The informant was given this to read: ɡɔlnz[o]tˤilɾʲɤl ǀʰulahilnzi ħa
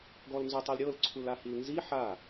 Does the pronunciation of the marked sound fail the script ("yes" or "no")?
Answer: no